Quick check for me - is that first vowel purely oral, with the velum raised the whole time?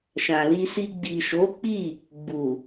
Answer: no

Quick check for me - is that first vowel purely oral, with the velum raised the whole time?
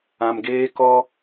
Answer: no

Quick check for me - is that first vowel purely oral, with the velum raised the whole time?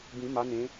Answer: no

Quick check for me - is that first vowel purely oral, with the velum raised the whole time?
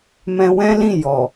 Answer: no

